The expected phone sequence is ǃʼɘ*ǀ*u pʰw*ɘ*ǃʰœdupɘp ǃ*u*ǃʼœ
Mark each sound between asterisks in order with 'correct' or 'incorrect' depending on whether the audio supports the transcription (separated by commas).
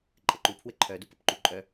incorrect, correct, correct